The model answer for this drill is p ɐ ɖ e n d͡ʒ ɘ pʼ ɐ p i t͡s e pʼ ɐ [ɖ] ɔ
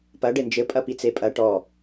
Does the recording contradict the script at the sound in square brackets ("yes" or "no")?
yes